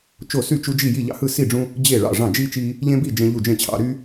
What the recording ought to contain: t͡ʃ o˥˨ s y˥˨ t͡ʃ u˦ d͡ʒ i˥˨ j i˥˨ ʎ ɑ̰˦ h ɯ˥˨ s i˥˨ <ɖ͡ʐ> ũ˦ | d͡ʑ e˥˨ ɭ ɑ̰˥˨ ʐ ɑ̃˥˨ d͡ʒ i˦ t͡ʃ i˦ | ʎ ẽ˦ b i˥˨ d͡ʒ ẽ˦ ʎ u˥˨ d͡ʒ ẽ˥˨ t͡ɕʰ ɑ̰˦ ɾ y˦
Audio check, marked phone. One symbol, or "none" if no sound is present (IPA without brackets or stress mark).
ɖ͡ʐ